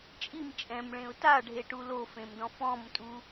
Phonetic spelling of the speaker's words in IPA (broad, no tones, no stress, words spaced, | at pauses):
t͡ʃʼim t͡ʃʼɛ̃mɭẽʊ̯ taɖʱeʈu lofẽmdɔ̃ fɔ̃mtʼu